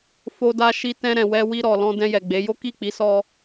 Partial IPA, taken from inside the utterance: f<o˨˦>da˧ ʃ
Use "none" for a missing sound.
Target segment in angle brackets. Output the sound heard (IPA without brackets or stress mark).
o˧